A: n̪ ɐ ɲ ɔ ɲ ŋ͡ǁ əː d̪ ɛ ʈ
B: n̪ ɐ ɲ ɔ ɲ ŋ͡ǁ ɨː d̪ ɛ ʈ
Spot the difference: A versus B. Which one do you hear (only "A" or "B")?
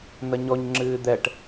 B